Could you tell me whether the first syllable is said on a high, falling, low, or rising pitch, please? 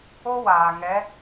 high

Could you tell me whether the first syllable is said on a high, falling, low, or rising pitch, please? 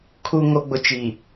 low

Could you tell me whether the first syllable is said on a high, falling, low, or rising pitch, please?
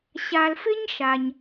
low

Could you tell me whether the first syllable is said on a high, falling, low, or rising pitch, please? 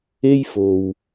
high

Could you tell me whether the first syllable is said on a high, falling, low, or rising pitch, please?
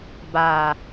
low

